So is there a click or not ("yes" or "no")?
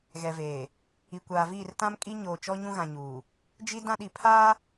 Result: no